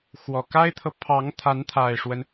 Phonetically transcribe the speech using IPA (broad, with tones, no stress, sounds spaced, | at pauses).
x w ɔ˨˩ k a˥ ɪ̯ t̪ʰ ɤ˨ pʰ ɑ˧˥ ŋ t̪ʰ a˧˥ n t̪ʰ a˨˩ ɪ̯ ʂ w ə˦ n